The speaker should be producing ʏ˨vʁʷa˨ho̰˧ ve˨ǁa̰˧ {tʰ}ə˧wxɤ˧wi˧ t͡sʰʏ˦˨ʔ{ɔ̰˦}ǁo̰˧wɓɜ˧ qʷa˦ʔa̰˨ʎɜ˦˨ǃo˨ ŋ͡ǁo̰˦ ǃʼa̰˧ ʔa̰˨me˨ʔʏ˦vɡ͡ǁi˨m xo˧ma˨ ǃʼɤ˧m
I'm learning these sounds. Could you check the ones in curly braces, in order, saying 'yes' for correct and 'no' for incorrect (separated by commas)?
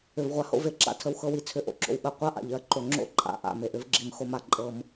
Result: yes, no